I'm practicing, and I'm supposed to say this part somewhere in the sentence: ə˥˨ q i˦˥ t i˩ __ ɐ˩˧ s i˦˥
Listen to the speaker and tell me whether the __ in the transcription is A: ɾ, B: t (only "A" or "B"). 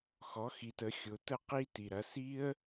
A